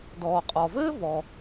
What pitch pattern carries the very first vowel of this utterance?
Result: low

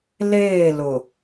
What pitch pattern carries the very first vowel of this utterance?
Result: falling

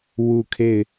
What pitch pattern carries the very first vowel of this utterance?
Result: falling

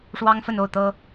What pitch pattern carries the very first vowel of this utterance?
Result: high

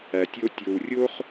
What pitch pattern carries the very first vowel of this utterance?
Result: low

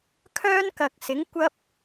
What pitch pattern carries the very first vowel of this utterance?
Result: high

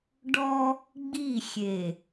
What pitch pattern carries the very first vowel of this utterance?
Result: high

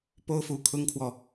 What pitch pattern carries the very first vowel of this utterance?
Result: high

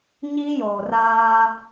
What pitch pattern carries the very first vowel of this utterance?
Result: high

